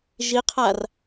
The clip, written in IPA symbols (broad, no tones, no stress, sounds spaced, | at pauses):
ʒ i qʰ a r